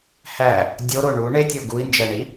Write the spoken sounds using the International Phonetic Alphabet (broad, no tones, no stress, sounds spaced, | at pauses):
h æ | dʲ o ɾ o ɳ u ɳ e tʲ o ɡ u i̯ n d͡ʒ æ ɳ i